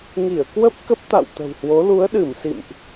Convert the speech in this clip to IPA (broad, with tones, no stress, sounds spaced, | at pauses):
ŋ i˧˩ ə̯ k w ə˦˥ p̚ k ə˦˥ p̚ t̪ a̰˧˨ w t̪ ə̤˨˩ w h w o˨˦ l u˨˦ ə̯ ɗ ɨ˧˩ m s ḭ˧˨ m ʔ